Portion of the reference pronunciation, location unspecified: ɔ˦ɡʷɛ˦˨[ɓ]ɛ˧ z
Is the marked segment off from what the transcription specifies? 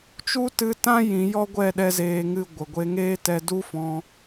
yes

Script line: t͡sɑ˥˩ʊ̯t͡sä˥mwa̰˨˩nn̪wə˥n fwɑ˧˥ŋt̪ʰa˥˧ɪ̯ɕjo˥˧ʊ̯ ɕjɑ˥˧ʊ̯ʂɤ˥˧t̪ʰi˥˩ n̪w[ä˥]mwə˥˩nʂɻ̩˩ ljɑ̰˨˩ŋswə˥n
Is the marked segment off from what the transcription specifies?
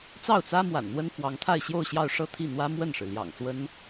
no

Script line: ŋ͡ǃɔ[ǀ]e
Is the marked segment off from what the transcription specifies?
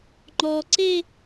no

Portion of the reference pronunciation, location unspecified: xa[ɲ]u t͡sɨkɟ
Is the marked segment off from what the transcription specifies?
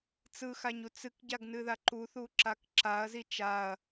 no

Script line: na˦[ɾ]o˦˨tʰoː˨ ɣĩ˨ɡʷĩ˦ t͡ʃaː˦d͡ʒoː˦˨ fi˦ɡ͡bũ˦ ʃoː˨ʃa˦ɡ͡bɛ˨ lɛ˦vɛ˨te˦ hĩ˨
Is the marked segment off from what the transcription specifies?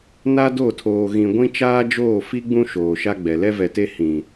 yes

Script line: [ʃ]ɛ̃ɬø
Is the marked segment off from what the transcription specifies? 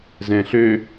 yes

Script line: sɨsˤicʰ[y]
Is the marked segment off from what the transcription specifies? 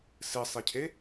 yes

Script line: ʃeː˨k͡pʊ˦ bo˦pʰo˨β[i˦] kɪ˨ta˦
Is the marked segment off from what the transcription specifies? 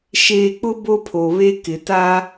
yes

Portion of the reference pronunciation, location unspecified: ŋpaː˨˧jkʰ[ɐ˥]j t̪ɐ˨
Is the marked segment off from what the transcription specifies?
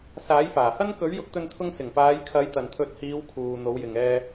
yes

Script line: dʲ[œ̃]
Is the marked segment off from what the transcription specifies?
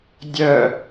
yes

